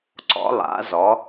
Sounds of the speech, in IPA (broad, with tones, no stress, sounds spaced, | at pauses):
ǀ ɔ̰˧˥ lˠ a̰˧˥ z ɔ˧˥